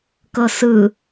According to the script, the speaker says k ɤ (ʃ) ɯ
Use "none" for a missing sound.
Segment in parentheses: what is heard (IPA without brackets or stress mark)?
s